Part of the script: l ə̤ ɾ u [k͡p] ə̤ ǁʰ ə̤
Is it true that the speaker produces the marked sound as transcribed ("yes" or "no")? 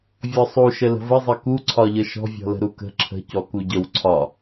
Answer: no